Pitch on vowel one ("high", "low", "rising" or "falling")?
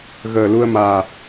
low